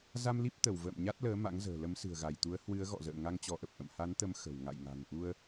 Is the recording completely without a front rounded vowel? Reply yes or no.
yes